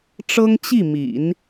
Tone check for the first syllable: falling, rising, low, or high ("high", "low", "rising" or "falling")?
high